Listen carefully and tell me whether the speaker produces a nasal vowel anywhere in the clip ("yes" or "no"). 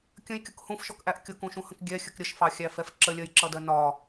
yes